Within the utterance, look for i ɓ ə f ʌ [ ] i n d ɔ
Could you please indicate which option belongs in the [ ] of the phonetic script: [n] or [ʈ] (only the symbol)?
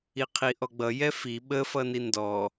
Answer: n